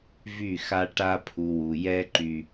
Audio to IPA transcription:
v y˦˨ x a˦ ʈ a˦ pʰ u˨ w u˨ j ɛ˦ ǃ y˦

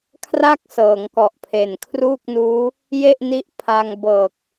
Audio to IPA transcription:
kʰ r a˥˩ k̚ s ɤː˩˦ ŋ k ɔ˨˩ ʔ pʰ e˨˩ n kʰ r uː˥˩ k̚ n uː˦˥ | j e˥˩ ʔ n i˦˥ ʔ pʰ a˧ ŋ b ɤː˨˩ k̚

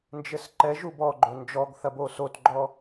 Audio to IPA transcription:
n d͡ʒ ɘ s ǃ ɛ ʒ u b ɔ ɡ͡ǃ o n d͡ʒ ɔ ɡ θ ɐ b o s o t ɡ͡ǃ ɔ

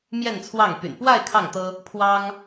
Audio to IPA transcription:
m j ɛ˥˧ n t͡sʰ w ɑ˥˩ ŋ p y̰˨˩ n p w a˥˧ ɪ̯ kʰ ɑ˥˩ ŋ t̪ ɤ˥ | pʰ w ɑ˥ ŋ

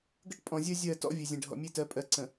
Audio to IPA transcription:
ɡ ə˦ ʈ pʼ ɔ̃˨ zʲ ɜ˦ zʲ ɜ˦˨ t ɔ̰˦ vʲ e˨ zʲ ẽ˨ ɖʱ ɔ̰˨ mʲ e˦ t ɜ˨˦ pʼ ɜ˨ ǀ ə̃˨

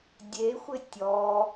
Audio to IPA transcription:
dʲ e xʷ ɪ tʲ ɔ

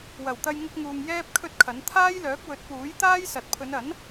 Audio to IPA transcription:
w ɐ˨˩ w t̪ ɐ˧ j ŋ ʊ˧ k̚ ŋ uː˨ ŋ j ɛː˥ p̚ kʰ ɵ˥ t̚ kʰ ɐ˨˥ n t̪ʰ aː˥ j l œː˨˥ k̚ w ɵ˨˥ t̚ p uː˨˥ j t̪ aː˥ j s ɐ˨ t̚ pʰ ɵ˨˧ n ɐ˨˥ n

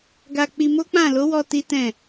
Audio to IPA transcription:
ɡ a˧ k͡p i˧ m o˦ k͡p ã˦˨ l o˨˦ w ɔ˧ t i˦ t ɛ̃˦˨

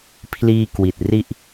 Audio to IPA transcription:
pʰ l iː˧ k w i˨˩ t̚ r i˥˩ ʔ

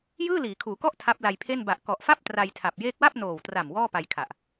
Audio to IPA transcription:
j ɯː˥˩ l iː˩˦ kʰ uː˩˦ k ɔ˥˩ ʔ tʰ a˦˥ p̚ l a˧ j pʰ e˥˩ n b a˨˩ ʔ k ɔ˨˩ ʔ f a˥˩ p̚ t r a˧ j tʰ a˨˩ p̚ j eː˦˥ k̚ w a˥˩ p̚ n oː˨˩ w t r a˨˩ m w ɔː˥˩ p a˧ j kʰ a˨˩ ʔ

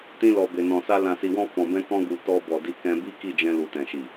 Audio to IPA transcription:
t ĩ˧ l ɔ˨ b e˨ n ɔ̃˨ s a˧ l ã˨ s i˨ w ɔ̃˧ f ɔ̃˨ b ɛ̃˧ k ɔ̃˧ ɡ u˨ t ɔ˧ b ɔ˨ d i˧ k ɛ̃˧ b i˦ k i˦˨ d͡ʒ ɛ̃˧ l u˨ t ɛ̃˨ ʃ i˨

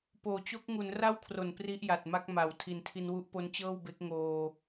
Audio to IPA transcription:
p oː˩˦ t͡ɕ o˦˥ k̚ ŋ u˩˦ n r a˥˩ w kʰ r o˨˩ n p r i˦˥ ʔ j a˨˩ t̚ m a˦˥ k̚ m a˨˩ w tʰ i˨˩ n tʰ i˧ n w u˦˥ ʔ p o˦˥ n t͡ɕ ɤː˥˩ w b e˦˥ k̚ ŋ oː˧

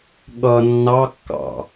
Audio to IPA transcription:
ɠ ʌ nː ɑ kː ɑ̰

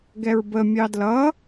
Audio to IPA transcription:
ɡ ɛ ɹ b ə mʲ ɑ d l ʌ

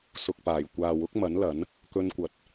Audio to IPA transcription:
s ʊ˨ k̚ p aː˨˩ j kʷ aː˨ w ʊ˨˥ k̚ m ɐ˨˥ n l ɐ˨˥ n | k ɵ˧ n kʷ ɐ˨˥ t̚

